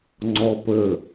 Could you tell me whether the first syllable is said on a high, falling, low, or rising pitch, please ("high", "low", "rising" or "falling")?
high